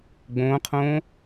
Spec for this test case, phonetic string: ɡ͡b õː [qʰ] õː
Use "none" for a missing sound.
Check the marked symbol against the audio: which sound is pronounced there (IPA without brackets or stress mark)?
qʰ